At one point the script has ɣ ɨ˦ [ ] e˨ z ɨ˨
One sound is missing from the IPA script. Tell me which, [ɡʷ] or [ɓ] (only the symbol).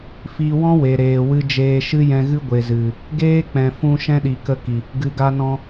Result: ɡʷ